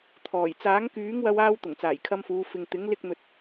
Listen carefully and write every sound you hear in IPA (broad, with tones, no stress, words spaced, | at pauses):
t̪ʰɔː˨˩j t͡saː˨˥ŋkyː˨˥ŋwɐ˧waː˧w t̪ʊ˨˩ŋt͡saː˨˩jkʰɐ˧mfuː˨˧ fɪ˨ŋ t̪ɪ˨˥ŋ lɪ˥k̚n̪ɵ˧t̚